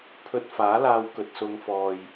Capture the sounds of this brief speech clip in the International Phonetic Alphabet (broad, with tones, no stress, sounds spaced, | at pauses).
pʰ ɵ˧ t̚ f aː˨˥ l aː˧ w k ɵ˨ t̚ s ʊ˨˧ ŋ f ɔː˨ j